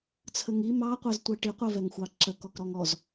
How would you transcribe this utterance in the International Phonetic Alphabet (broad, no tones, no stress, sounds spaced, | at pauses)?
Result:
t͡sʰ ə ŋ i m ɑ qʷ ɜ z tʷ ɜ ʈ i qʷ ɜ v ɛ ŋ xʷ ɑ ǁ ə k ɔ k ɾ ɔ ŋ ɔ z